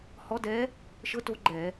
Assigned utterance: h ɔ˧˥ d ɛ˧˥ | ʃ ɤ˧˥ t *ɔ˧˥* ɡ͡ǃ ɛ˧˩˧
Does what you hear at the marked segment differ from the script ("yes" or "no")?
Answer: yes